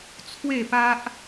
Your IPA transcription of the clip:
t͡sʰ w e˥˧ p a˦ ʔ

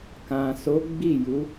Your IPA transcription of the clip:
k ã˨ s o˨˦ ɡ͡b i˦˨ j u˨˦

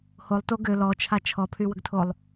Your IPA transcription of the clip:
h o lˠ t o ɡ ø l ɔ t͡ʃʰ a t͡ʃʰ ɔ pʰ y w ə ɡ tʰ o lˠ

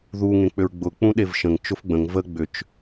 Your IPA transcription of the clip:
ð u ŋ ẽ k͡p ʏ ɹ ɡ͡b ʊ k͡p ũ ɗ e v ʃ ə̃ ŋ t͡ʃ ʊ f ɡ͡b ə̃ ŋ v ə ɡ͡b ʏ t͡ʃ

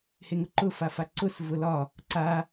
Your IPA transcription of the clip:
h e ŋ ʊ ǃ ʊ f a f a ǀ ʊ s v ʊ l ɒ | ǀ a

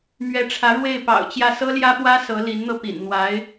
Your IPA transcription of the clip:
m ɥ ɛ˧˥ ʈ͡ʂʰ ä˧˥ ɻ w e˥˩ ɪ̯ p ɑ̰˨˩ ʊ̯ t͡ɕ j ä˥˩ s ɤ˥ l j ä˥ p w ä˥ s ɤ˧˥ l i˧˥ n n̪ ɤ˧ p ḭ˨˩ n n̪ w a˧˥ ɪ̯

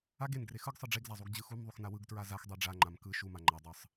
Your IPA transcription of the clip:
a ɡ e n ɡ r e x ɯ ɡ sˤ ɯ ɖ͡ʐ e ɡ z a zˤ u ɡ d͡ʑ ɯ x u m ðˤ u x n a w ɯ ɡ t ɹ a z a x dˤ e ɖ͡ʐ a ŋ͡ǃ a m k ɯ ʃ u m a ŋ͡ǃ a dˤ ɯ sˤ

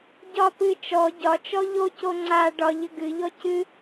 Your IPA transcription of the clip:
ɟ ɒ p ɨ t͡ʃ ɔ ɟ ɒ t͡ʃ ɔ ʎ o c o ŋ͡ǀ a ɖ ɒ ʎ ə ɡ ɨ ʎ ɔ c ɨ

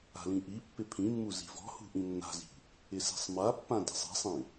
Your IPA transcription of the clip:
a̤ l ĩ ʔ i pː ɪ pʰ ĩ mː u z i̤ v ɔ̤ h ṳ ʔ ĩ nː a̤ z i̤ | ɪ s i̤ sˤ m a pː ã d e̤ sˤ i̤ sˤ ĩ

